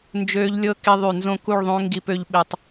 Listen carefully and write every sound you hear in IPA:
n d͡ʒ øː˦ ʎ lʲ ɤ˦ k i˧ ðˤ y˨ n z õ˦ k u˦˨ ɭ ðˤ õ˦ ŋ ɡ i˦ p ø˦ ʎ ɓ e˧ tˤ

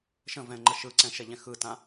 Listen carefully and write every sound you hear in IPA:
ʃ ə̃ v ɛ̃ ŋ͡ǃ ə ʃ ɯ ǀ ɛ̃ ʃ ɛ ʎ ɛ̃ x ɯ t ã

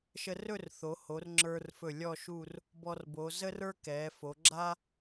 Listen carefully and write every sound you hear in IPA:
ʃ ə˧ r ɵ˥˧ r θ o˩˧ h o˩˧ r ŋ͡ǁ ə˞˧ r f ɵ˧˩ lʲ ɔ˥˧ ʃ u˥˧ r | b ɔ˧ r b o˩˧ z ə˥ r ə˞˥ k ɛ˩˧ f o˩˧ ɡ͡ǁ a˥

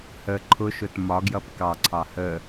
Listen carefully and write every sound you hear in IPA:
h ə ǃʰ ʊ ʃ ʊ t m ɒ ɡ j ʌ p k ɑ ǀʰ ɑ h ə

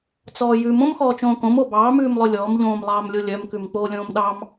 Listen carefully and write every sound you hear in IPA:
t͡s ɔː j ʉ m õ m x ɔː t͡ʃ õː k õ m o b ɑː m ʉː m lˠ ɵ lʲ ɔː m ʎ õː m lˠ ɑː m lʲ o lʲ œ m k ʉ m k͡p oː lʲ õː m ɗ ɑ m

